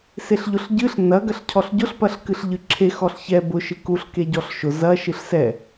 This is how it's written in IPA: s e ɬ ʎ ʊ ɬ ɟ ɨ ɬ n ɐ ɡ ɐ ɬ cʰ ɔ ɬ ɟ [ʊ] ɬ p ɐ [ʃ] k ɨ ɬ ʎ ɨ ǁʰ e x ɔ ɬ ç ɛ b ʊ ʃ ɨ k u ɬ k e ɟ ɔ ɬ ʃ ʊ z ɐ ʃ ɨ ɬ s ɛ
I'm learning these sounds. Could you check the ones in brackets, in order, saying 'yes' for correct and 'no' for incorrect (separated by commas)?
yes, no